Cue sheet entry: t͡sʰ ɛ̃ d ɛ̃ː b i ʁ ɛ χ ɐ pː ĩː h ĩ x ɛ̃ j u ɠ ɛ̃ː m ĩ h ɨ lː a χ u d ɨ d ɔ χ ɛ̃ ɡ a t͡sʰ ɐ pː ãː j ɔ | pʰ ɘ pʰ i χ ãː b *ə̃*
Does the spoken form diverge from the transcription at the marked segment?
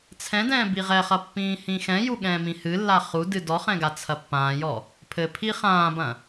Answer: yes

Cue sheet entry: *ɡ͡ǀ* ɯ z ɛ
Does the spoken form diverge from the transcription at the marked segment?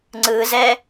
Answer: yes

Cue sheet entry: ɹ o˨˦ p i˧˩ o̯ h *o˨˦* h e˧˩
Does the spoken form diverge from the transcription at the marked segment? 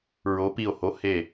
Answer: no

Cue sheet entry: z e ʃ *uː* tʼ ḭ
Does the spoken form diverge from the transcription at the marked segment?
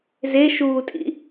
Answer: no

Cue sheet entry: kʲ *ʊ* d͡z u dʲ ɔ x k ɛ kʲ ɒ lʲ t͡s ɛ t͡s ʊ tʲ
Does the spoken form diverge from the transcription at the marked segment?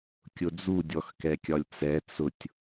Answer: no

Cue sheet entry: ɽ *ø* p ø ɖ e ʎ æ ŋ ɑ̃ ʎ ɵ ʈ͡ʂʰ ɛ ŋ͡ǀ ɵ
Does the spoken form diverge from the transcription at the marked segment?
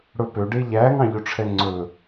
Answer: yes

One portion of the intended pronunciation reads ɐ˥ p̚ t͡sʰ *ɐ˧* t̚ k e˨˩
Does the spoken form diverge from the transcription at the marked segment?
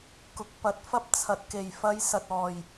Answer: yes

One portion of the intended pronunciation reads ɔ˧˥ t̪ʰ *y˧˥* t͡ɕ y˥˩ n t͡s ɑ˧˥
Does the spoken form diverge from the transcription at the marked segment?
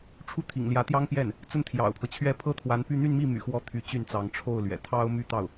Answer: no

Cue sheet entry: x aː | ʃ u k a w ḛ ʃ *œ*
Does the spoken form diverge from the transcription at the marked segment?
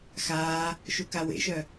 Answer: no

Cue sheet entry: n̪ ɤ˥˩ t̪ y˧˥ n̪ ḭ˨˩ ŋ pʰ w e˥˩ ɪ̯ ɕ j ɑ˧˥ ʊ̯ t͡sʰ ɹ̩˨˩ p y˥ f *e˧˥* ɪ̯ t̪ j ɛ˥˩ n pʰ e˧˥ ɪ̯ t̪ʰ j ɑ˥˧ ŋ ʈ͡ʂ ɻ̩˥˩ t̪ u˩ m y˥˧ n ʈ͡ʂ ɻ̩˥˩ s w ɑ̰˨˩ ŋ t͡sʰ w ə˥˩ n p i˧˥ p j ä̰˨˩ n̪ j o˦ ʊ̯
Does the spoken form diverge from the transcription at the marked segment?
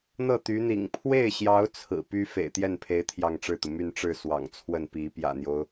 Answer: yes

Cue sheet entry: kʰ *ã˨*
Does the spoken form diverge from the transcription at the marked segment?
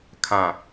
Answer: no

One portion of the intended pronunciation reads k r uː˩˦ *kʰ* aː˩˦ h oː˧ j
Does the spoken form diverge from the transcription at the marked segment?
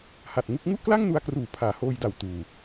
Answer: yes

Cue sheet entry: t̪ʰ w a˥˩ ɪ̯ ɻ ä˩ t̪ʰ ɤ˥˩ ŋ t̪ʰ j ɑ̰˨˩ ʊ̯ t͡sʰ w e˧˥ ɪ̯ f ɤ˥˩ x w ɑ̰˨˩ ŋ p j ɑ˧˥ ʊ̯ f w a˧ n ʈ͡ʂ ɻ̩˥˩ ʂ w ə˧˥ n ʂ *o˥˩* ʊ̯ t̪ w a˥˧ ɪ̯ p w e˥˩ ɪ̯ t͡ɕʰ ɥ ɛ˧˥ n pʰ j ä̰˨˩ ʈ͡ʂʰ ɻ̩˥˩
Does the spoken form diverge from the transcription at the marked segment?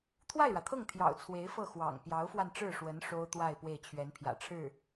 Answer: yes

